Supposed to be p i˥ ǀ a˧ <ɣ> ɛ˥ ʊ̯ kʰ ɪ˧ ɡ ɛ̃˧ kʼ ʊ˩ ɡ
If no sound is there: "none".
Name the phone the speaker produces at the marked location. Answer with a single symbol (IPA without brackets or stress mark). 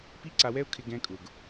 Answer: w